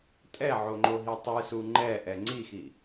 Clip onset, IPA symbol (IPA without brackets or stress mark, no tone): tʼ